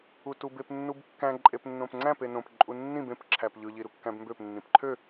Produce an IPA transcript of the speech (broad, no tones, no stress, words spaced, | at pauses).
utubep nːubkːæ̃ ǃʼepnːõpŋ͡ǀæ̃p enõp ǃʼunːĩb ẽp ǁʰæpʎɯ ʎiɾukːæ̃bmbøp nːĩpǃʰø